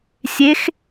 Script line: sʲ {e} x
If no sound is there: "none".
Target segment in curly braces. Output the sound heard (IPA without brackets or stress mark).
e